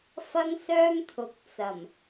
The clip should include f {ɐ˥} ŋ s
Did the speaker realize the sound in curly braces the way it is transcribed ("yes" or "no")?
yes